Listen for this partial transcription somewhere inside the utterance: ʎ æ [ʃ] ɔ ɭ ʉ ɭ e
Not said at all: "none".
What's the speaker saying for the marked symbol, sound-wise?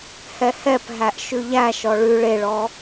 ʃ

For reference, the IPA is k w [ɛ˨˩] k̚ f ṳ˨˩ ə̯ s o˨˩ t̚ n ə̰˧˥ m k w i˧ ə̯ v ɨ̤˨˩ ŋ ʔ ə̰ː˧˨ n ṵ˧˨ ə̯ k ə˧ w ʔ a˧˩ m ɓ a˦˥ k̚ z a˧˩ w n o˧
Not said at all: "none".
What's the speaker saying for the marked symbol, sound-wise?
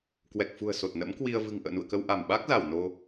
ɛ˨˩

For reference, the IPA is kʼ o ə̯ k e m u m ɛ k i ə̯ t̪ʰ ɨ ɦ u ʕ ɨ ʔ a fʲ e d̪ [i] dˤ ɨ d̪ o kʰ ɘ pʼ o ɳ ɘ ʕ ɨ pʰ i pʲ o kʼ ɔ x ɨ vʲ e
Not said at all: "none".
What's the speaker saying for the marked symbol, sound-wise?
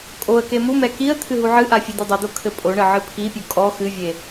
e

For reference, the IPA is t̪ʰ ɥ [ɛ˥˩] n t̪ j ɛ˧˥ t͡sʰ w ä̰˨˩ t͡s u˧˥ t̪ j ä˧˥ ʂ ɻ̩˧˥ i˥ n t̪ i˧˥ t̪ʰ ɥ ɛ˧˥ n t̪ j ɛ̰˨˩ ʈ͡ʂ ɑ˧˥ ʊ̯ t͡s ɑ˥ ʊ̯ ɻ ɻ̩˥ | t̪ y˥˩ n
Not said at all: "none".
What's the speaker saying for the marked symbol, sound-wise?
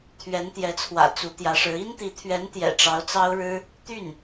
ɛ˧˥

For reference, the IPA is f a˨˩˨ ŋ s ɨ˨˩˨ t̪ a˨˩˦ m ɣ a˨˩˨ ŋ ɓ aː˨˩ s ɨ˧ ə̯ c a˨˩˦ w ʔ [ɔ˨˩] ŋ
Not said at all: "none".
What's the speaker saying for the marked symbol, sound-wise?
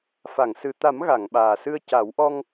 ɔ˧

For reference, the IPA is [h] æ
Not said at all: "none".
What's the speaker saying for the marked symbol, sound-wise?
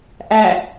ʔ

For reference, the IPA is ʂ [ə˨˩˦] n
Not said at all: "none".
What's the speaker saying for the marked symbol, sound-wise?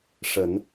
ə˨˩˦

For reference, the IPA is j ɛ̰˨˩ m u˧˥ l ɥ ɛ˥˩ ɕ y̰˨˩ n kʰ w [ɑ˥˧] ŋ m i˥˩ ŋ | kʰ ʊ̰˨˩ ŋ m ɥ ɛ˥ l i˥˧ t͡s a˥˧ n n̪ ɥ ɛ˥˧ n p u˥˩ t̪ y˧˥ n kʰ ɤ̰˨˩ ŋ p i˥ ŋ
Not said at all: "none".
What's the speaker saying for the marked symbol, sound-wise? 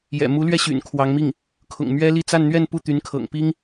ɑ˧˥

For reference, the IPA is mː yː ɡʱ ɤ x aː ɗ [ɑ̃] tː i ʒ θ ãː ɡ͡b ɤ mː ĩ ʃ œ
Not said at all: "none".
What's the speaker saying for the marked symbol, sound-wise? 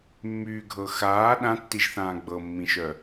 ã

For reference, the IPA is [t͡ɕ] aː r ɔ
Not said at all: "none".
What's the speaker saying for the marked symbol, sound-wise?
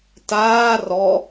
t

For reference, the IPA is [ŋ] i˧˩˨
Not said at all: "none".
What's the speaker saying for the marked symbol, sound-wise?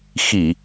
x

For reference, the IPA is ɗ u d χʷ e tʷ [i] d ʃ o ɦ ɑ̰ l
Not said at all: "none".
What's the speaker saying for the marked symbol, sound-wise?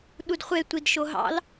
i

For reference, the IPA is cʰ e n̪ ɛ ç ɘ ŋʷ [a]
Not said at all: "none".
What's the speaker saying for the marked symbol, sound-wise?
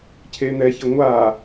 a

